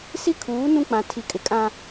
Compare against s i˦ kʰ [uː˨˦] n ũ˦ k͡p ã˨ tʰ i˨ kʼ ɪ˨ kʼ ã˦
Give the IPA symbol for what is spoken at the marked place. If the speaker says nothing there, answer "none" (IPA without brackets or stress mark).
uː˨˦